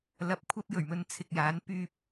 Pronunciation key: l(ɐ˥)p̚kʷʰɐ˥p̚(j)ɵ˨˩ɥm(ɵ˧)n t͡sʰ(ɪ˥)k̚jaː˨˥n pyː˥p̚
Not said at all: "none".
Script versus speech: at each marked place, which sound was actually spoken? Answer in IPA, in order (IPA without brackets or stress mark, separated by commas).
ɐ˧, j, ɵ˧, ɪ˨